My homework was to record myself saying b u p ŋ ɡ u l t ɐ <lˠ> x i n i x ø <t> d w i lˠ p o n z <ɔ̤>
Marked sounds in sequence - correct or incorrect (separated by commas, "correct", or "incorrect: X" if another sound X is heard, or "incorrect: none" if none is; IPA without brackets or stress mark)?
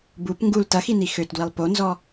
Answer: incorrect: none, correct, incorrect: ɔ